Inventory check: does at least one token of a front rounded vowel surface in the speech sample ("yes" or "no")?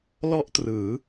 no